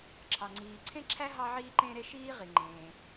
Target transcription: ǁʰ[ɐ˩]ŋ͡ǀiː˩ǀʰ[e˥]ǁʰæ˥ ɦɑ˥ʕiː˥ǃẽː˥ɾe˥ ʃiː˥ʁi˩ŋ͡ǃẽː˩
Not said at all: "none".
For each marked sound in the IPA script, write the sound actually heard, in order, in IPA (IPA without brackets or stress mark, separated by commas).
ɑ˩, ẽ˥